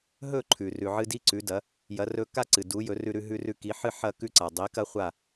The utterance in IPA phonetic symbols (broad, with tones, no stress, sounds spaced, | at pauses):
ɦ ɵ˥˩ ǃʰ ʉ˩ r ʉ˩ ʕ ɨ˧ d i˥ ǀ ʉ˩˥ d ɐ˩˥ | j ɐ˩˥ r ɵ˧ k a˥ ǀ ɨ˩ d u˩˥ j ɵ˩˥ r ʉ˧ ɾ ʉ˧ ɦ ʉ˧ r ʉ˧ k i˩˥ ħ ɨ˥˩ ħ ɐ˥˩ k ʉ˥˩ ǀ a˩ dˤ i˩˥ k ɐ˥ χʷ a˥˩